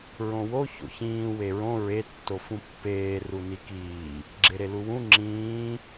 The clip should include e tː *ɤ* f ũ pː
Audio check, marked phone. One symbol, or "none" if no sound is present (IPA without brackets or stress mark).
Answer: o